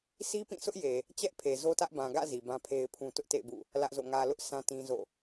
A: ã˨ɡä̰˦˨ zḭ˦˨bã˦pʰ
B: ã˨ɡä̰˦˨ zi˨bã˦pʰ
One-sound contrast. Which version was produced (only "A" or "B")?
B